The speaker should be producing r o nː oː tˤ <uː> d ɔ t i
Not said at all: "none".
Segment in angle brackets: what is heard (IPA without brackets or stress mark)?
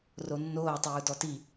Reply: uː